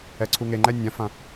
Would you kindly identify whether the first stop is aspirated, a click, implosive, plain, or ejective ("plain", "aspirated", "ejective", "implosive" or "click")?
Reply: click